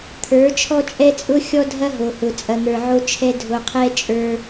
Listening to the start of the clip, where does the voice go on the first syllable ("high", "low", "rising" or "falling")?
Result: rising